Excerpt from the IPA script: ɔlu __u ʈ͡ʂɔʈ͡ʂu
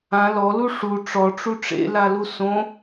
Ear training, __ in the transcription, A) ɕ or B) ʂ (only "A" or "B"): B